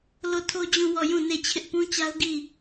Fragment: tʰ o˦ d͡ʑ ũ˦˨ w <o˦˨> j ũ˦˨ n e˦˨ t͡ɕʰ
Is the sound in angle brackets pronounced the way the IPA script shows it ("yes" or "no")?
no